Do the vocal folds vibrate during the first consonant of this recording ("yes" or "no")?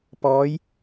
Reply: no